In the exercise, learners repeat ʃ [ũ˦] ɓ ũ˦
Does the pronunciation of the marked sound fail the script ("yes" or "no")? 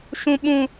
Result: no